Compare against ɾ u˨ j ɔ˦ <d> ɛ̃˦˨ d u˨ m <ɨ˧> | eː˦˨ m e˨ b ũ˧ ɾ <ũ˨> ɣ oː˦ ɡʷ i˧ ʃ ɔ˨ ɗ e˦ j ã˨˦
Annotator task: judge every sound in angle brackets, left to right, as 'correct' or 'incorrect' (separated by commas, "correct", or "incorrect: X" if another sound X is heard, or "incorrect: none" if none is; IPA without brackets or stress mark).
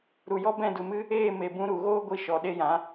incorrect: b, correct, incorrect: u˨